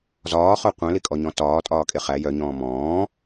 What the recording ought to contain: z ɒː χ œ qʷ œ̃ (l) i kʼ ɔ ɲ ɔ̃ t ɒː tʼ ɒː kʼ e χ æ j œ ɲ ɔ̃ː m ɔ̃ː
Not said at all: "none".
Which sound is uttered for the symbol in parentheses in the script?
l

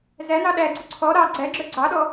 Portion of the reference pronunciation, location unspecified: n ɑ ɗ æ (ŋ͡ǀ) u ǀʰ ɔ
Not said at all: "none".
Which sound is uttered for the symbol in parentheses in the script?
ɡ͡ǀ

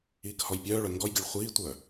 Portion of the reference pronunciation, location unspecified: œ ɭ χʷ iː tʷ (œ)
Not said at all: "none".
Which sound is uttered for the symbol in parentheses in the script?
œ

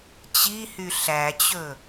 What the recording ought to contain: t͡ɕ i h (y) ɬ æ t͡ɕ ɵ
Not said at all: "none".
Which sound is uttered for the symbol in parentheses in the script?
y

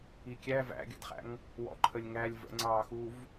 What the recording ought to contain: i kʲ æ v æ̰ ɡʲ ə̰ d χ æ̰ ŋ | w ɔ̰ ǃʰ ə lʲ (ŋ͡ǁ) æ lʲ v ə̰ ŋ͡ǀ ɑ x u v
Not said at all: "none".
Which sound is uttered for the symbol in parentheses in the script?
ŋ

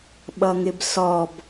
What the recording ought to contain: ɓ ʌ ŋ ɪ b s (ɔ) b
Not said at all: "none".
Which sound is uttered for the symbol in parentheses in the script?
ɔ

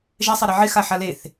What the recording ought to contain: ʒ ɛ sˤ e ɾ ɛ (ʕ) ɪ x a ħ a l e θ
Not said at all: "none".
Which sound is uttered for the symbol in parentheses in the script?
ʕ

